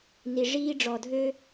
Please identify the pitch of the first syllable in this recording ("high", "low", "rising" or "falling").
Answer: low